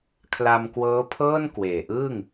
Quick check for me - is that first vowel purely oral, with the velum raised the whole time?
yes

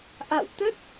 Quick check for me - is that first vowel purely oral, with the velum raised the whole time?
yes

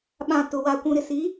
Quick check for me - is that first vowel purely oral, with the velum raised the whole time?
no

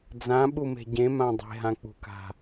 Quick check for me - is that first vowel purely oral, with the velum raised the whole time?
no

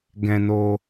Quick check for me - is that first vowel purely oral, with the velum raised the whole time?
no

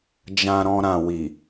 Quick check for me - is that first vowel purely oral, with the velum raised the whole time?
no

